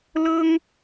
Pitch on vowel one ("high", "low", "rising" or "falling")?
high